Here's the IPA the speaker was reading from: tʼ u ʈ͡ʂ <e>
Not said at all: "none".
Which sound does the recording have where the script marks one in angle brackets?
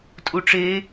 e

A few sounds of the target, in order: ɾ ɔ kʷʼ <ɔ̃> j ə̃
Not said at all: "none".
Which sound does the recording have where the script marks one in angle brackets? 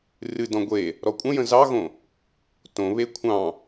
ə̃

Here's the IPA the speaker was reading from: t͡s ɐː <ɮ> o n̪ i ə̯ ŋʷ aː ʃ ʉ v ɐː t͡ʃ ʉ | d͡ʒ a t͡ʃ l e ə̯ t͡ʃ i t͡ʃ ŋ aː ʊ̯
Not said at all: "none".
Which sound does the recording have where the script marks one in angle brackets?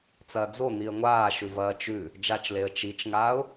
d͡z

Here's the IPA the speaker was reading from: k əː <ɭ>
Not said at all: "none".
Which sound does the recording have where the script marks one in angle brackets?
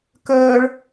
ɭ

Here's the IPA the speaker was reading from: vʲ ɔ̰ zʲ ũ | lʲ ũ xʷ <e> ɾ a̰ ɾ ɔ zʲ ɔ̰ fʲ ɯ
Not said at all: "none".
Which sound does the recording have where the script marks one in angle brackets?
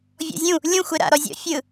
e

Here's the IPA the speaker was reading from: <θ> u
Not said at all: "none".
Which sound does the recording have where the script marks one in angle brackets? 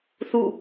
θ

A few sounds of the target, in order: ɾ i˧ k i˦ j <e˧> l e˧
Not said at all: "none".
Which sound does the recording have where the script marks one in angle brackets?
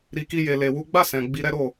e˧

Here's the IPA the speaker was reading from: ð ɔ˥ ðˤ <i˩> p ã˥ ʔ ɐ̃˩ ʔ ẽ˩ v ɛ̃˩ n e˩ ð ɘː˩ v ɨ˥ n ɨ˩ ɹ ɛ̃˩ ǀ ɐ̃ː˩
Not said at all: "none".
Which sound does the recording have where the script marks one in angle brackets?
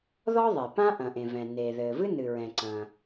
e˩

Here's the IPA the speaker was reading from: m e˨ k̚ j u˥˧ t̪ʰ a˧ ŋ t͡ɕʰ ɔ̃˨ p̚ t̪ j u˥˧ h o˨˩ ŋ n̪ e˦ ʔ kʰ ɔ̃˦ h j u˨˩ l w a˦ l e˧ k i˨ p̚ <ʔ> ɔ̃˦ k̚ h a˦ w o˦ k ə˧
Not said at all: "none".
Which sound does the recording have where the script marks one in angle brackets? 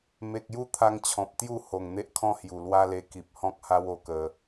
h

